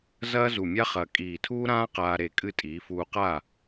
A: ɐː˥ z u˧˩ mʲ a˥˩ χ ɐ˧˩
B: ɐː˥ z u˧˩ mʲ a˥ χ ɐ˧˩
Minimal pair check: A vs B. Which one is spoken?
B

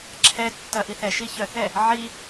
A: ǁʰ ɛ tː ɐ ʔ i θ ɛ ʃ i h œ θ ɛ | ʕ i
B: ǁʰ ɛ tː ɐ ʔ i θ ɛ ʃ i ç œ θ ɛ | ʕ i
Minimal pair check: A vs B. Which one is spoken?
B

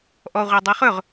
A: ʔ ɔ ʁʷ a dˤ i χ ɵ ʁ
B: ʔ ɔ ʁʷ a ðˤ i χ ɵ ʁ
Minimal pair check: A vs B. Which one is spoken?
A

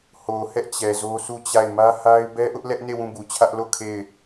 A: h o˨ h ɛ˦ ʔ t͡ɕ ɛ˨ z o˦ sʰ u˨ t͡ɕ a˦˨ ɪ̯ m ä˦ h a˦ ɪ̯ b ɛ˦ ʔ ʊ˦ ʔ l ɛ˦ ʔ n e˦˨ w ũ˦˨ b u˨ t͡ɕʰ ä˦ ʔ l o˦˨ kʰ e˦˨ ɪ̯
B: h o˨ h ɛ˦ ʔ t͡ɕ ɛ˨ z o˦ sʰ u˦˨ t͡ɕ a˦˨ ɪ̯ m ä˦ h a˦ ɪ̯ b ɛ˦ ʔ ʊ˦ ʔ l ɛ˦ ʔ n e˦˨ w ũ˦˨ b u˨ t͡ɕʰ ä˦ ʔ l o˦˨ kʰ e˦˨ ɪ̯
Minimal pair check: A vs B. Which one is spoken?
B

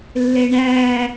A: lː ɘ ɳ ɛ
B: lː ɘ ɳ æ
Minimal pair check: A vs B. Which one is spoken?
B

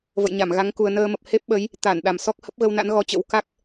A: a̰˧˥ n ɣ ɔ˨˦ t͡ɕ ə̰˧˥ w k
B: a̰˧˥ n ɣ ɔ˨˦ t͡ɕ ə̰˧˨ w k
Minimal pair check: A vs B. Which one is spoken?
A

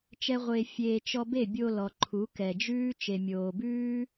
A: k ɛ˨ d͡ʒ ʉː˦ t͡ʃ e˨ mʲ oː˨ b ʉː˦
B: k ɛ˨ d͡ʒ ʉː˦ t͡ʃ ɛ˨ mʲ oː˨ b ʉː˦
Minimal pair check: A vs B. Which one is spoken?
A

